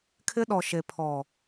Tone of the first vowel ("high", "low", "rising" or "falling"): high